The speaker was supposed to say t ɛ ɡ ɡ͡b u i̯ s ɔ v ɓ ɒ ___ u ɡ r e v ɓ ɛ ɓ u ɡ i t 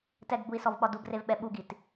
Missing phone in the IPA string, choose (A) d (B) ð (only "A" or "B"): A